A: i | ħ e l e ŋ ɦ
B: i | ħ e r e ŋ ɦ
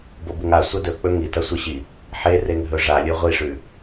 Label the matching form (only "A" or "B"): B